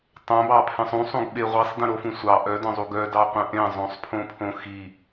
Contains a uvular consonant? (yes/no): yes